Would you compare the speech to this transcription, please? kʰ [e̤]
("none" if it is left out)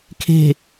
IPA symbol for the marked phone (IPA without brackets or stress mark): e̤